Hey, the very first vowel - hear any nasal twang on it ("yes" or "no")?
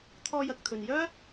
no